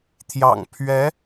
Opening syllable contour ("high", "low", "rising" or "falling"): low